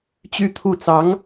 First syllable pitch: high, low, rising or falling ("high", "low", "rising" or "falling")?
high